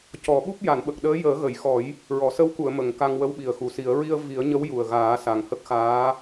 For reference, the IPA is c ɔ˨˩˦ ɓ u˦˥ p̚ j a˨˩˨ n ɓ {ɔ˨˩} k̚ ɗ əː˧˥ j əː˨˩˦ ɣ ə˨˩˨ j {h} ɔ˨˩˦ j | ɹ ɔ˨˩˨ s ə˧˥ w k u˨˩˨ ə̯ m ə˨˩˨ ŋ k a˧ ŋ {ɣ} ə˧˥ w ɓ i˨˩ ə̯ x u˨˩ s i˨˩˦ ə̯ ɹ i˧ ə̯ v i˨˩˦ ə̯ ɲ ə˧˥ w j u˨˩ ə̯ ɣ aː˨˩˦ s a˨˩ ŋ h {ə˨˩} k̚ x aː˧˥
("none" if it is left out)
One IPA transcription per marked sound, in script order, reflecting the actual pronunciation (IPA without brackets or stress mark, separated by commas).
ə˨˩, x, w, ə˦˥